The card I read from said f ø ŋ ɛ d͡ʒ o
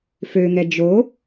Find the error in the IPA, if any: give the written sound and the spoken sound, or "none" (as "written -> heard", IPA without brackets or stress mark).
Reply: none